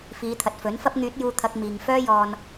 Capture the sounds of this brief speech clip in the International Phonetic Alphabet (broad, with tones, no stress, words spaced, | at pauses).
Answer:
fiː˨˧t̪ʰɐ˨t̚ fɵ˨˥nfɐ˥p̚ ŋyː˨˥t̚juː˧ t̪ʰɐ˧k̚miː˨ŋ fœː˥jɔː˧n